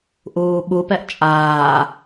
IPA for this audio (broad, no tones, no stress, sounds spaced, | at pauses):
ʔ uː ɓ u p ɛ ʔ t͡ʃʼ aː